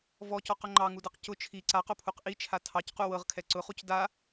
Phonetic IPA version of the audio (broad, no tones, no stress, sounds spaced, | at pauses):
v ɔ c ɔ q ʊ ŋ͡ǃ ɑ ŋ u d ɤ q c ʊ t͡ʃʰ i ǀ a q o pʰ u q ʔ i t͡ʃʰ a tʰ ɑ c q u w ɤ ʁ kʰ ɛ ǀ ʊ χ u c d a